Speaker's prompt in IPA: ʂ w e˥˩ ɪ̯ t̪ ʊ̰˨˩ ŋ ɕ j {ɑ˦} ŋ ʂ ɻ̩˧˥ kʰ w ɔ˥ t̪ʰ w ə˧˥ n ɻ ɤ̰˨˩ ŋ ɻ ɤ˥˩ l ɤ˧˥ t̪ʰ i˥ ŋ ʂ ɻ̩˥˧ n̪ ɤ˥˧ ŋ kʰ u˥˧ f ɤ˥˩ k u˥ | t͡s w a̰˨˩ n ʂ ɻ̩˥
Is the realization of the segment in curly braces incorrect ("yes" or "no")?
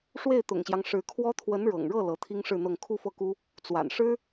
no